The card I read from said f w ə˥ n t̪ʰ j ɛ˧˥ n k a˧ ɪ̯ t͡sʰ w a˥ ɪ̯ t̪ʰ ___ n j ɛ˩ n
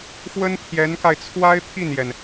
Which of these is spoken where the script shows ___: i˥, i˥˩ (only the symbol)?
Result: i˥˩